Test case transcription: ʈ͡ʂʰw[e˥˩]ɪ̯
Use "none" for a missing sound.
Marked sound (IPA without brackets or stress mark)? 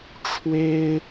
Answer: e˥